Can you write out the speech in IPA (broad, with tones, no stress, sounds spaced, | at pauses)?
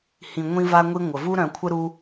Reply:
h ĩ˨ ŋʷ ĩ˦ v a˦ ŋʷ i˦ ŋʷ ə˩ v u˥ ɾ œ̃˨ kʷʰ ə˥ ɾ u˥